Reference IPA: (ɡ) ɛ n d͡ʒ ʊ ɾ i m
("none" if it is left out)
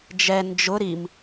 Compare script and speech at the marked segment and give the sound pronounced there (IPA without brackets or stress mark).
d͡ʒ